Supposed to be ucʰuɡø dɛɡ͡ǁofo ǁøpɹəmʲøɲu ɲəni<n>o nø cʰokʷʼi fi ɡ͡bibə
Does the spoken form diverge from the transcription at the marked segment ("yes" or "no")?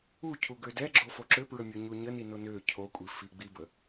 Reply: no